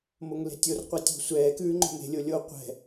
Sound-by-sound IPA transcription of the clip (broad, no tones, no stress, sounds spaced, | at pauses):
m o ŋ l e̤ tʲ o r qʷ ɛ tʲ o̤ sʷ ɛː k ʉː ŋ͡ǃ o̤ m e̤ lʲ o lʲ o qʷ ɛ̤